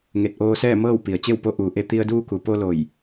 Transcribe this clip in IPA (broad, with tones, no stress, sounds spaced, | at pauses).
ŋ e˧˩ t̚ ʔ oː˧ s ɛː˥˨ m ɤː˥˨ w p i˩ ə̯ t͡ɕ e˥˨ w p o˧˥ ʔ uː˩˧ ʔ e˧ t̪ i˧ ə̯ d uː˧ k u˩ p o˧ l o˧˩ j